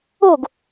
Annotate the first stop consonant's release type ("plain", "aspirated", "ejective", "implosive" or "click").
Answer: plain